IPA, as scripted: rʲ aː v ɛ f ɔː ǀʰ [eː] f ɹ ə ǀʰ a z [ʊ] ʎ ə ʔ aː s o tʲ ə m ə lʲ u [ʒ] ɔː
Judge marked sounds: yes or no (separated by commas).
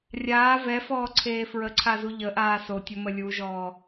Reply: yes, no, yes